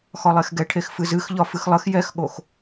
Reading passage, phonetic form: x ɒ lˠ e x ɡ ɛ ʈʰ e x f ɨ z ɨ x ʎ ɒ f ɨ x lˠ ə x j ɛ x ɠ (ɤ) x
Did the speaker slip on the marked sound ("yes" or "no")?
yes